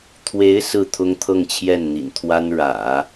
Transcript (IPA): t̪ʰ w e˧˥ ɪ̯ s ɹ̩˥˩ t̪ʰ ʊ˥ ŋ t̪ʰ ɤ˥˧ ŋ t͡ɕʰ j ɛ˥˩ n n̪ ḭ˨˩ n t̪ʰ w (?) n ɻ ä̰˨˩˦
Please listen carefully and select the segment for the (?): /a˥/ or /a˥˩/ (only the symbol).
a˥